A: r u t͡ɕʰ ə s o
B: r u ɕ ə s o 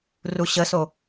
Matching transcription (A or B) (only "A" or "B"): B